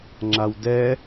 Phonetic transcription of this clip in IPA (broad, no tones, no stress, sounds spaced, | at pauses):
ŋ͡ǁ a w d ɛ